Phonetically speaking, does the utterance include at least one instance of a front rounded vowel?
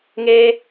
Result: no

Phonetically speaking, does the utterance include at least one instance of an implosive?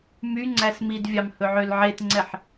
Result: no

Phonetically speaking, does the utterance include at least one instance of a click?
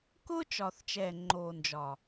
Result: yes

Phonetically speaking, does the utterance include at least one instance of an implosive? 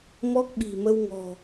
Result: yes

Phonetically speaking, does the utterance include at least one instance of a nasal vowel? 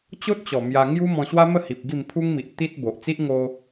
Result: yes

